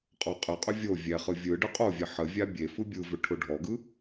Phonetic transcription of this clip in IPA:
qʼ ɔ qʼ ɯ qʼ ʏ vʲ o vʲ ɛ χ ɯ vʲ ɯ ɖ ɯ qʼ o vʲ ɛ ħ ə vʲ a bʲ e f ɯ bʲ ɯ v ʏ ʈʰ ʊ ɖʱ ɔ ɡ ɯ

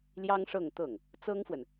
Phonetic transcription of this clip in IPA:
l j ɑ˥ ŋ ʂ ɤ˥˧ ŋ t̪ ɤ˥˩ ŋ | t͡s ɤ˥ ŋ f w ə˨ n

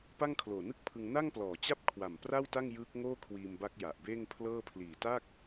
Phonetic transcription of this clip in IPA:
p a˥˩ ŋ kʰ l oː˨˩ n ɯ˥˩ k̚ pʰ ɯ˧ ŋ n a˥˩ ŋ p l ɔː˨˩ t͡ɕ a˥˩ p̚ kʰ w a˨˩ m p r a˥˩ w t a˥˩ ŋ j ɯː˦˥ k̚ ŋ oː˥˩ kʰ w iː˧ m b a˦˥ k̚ j a˨˩ ʔ b eː˥˩ ŋ pʰ l ɤː˥˩ pʰ l iː˨˩ t a˥˩ k̚

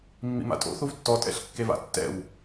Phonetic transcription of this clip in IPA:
mː ḭ m a̰ tʼ o̰ θ u v tː ɔ tʼ ɛ̰ ɬ kː e v a̰ tː ɛ̰ w

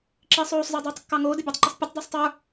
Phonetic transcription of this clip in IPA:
ǁ iː sˤ oː sˤ z ə˞ dˤ oː tˤ kː ɑ ŋ oː d ə bʲ ɑ tˤ ǃ ə sˤ pʲ ə tˤ d əː sˤ tˤ ə˞

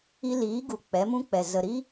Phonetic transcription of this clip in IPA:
i˧ l iː˨˦ ɡ u˨ k͡p ɛ˨˦ m ũ˦ k͡p ɛ˨ z ə˨ ɾ i˦

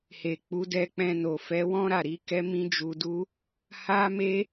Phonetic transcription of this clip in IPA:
h e˨ k͡p u˨˦ d ɛ˧ k͡p ɛ̃˧ n o˨ f ɛ˨˦ w ɔ̃˦ ɾ a˦˨ ɾ i˨˦ k ɛ˦ m ĩ˦ d͡ʒ u˧ d u˦ | h a˦ m e˦

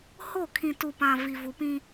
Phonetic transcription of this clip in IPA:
h o˦˨ kʰ ĩ˨ t u˨ p ã˨ v i˨ v u˨ p ĩ˦

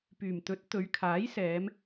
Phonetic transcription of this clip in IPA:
p yː˨˩ m t̪ ɵ˨˥ t̚ t̪ ɵ˨˧ ɥ kʰ aː˨˥ j s ɛː˨˧ m

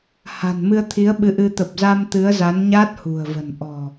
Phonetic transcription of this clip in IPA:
h a̤˨˩ n m ɨ˧ ə̯ t̪ʰ i˨˦ ə̯ ɓ ɨ˨˦ ʔ ɨ˧ t̪ ə˨˩ p̚ z a˧ m t̪ ɨ˨˦ ə̯ z a˨˦ n ɲ aː˦˥ t̚ h ṳ˨˩ ə̯ v ə̤˨˩ n ʔ ɔ̤˨˩

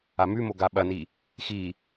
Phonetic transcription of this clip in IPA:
a m ʉ m o ɡ a ɓ ɐ n i | x i

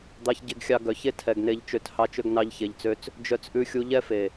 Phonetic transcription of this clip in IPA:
d̪ ɑ˦ ç ɟ e˦ ɡ xʲ ɑ˦ ɡ œ˨˦ ç e˦ tʰ ɛ˨ ɡ n e˧ ʎ t͡ʃ ø˧ t h ɑ˦ t͡ʃ ø˦ ɡ n ɑ˦ ʎ ç e˧ ʎ t͡s ø˦ t͡s | d͡ʒ œ˧ t͡s ʔ ʉ˧ xʲ u˧ ʎ ɛ˦ f e˨

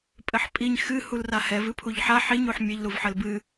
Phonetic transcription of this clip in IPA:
pʼ ɘ ħ pʼ i ɲ x ɨ h u l r a h ɛ v ɨ pʰ u ʎ ħ a ħ i ɲ u ħ mʲ ɘ ʎ l u v ħ ɘ l b ɨ

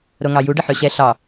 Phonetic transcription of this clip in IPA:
ɾ o ŋ ɑ j u ɖ ə ħ ø ɕ ɛ ɬ ɑ

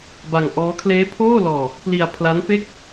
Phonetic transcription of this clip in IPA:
b a˧ ŋ ʔ ɔː˦˥ kʰ l eː˦˥ pʰ oː˥˩ l ɔː˧ | p l i˧ a̯ pʰ l a˦˥ n f e˥˩ k̚

